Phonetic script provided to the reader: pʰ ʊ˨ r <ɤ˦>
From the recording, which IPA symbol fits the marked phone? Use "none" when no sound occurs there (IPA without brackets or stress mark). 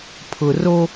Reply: o˦